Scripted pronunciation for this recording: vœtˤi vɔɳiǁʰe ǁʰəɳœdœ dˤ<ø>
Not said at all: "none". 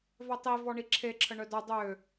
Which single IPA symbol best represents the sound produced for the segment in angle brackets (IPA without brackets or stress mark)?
ø